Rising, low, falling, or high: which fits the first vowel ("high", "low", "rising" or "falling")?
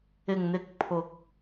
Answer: low